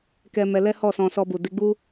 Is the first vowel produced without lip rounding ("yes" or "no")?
yes